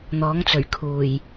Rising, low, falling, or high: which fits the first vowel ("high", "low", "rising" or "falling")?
rising